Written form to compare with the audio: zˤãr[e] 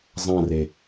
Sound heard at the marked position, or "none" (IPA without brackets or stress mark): e